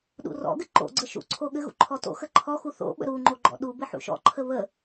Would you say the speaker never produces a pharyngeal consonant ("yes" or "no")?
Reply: no